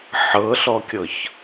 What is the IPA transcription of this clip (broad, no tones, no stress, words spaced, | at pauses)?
ħɤɬɔkʲɤç